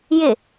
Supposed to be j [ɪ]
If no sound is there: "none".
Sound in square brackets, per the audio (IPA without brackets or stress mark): ɪ